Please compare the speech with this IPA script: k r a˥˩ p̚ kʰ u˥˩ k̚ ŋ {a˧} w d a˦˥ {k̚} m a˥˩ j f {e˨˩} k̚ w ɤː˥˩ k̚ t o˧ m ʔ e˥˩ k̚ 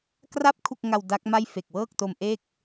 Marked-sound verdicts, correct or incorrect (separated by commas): correct, correct, correct